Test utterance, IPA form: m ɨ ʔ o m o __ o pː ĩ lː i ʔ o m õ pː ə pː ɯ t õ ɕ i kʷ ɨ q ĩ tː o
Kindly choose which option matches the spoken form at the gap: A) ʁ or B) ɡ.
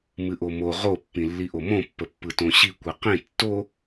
A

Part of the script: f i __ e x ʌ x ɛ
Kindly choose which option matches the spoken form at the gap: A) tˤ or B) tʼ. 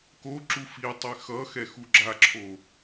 A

